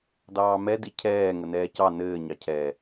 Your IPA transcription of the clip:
d ɑː m ɛ d i cʰ ɛː ŋ ə n ɛː c ɑ n ɘː ɲ ɑ cʰ ɛ

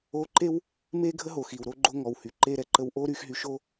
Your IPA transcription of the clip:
o˧ ǃ e˥ w | m e˥ ɡʱ ə˥ ɦ o˩ x i˩ w ɾ o˧ ɡ͡ǃ o˧ ŋ ɔ˩ w h y˩ ǃ e˧ ɾ ɛ˩ ǃ ə˧ w ʔ o˥ ɾ y˧ x ɦ y˧ ʃ o˥

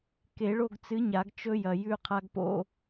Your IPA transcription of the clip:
k e˨˩˦ ɭ o˦˨ ɡ t͡s ɨ˨˥ ɲ a˨˩˦ ɡ t͡ʃ ɵ˦ j ɐ˨ j ʉ˦˨ qʰ a˦ ɡ p o̰˦

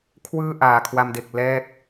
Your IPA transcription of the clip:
kʰ w ɯː˥˩ ʔ aː˨˩ kʰ w a˧ m d e˨˩ k̚ l ɛː˥˩ k̚

